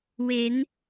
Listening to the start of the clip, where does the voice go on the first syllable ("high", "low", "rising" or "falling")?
rising